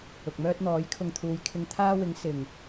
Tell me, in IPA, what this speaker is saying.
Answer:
ʊ˨ k̚ m œː˥ t̚ n̪ ɔː˨˥ j kʰ ʊ˧ ŋ t̪ʰ uː˨˧ j kʰ ɪ˧ ŋ t̪ʰ aː˥ w ɪ˨˥ ŋ s ɪ˨˩ ŋ

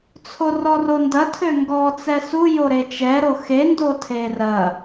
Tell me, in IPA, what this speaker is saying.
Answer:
t͡sʰ o r ɔ r o n d ɐ tʰ ø ŋ ɡ ɔ t͡s ɛ s u j o ɾ e t͡ʃ ɛ ɾ o x e n d o tʰ e r ɐ

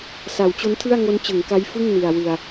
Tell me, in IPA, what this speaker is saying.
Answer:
s a˩˦ w t͡ɕ o˦˥ n tʰ ɯ˥˩ a̯ ŋ o˦˥ n t͡ɕ ɯ˩˦ ŋ k a˦˥ j f ɯ˥˩ ŋ n i˨˩ a̯ w ɯ˨˩ a̯

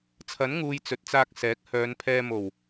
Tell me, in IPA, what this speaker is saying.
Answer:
t͡sʰ ɐ˨˥ n ŋ uː˧ j t͡s ɵ˨ t̚ t͡s aː˧ k̚ s ɛː˨˥ k̚ h œː˨˧ n pʰ ɛː˧ m o˨˩ w

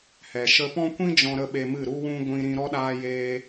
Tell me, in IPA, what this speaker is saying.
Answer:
h ɛ˨ ʃ ə˧ p ɔ̃˦ kʷ ĩ˦ d͡ʒ ɔ̃˧ ɾ ə˧ ɓ e˧ m ɨ˦˨ ɾ u˦ w ũ˦ ɡʷ ĩ˧ ɾ ĩ˧ ɾ ɔ˧ ɗ aː˧ j eː˧

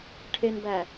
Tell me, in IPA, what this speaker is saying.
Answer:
ʈʰ e n b æ

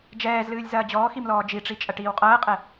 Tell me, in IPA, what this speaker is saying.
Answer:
d͡ʒ ɛː z l ɨː lʲ z ɐː d͡ʑ ɔː x i m l ɔː d͡ʒ i ʈ͡ʂ i t͡ʃʼ ɐ ʈ iː w qʼ ɐː qʼ ɛ

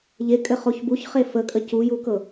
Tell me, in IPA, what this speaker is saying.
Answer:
ʎ e kʼ ɘ χ o ç b u ç χ e f ə kʼ ə c u j u k ɤ

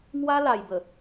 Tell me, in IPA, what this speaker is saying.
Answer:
ŋ w a˦ l a˨˩ j b ə˨˩

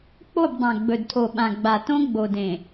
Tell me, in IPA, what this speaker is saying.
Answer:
k͡p o˦˨ b dˤ ã˨ ɡ͡b ɵ˨ d tʰ o˨ ɓ ã˨ ɡ͡b a˨ t õ˦ ɡ͡b o˨ d ẽ˨

